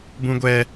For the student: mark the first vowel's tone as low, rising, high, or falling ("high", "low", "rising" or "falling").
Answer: high